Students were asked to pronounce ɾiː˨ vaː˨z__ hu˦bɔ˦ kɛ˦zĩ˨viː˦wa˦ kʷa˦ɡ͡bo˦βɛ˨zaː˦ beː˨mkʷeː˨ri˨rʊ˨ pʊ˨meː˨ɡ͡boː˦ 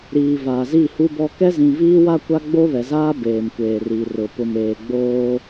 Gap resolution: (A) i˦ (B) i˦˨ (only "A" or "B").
B